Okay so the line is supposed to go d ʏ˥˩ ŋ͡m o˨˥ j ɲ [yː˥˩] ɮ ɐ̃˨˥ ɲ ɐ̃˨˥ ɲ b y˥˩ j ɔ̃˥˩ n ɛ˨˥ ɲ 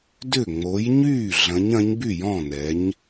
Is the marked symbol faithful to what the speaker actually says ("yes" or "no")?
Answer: yes